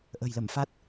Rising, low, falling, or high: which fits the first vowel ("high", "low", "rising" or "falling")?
low